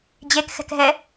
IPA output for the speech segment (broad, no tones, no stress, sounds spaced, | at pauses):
d͡ʑ e k x ɛ̤ k ɦ ɛ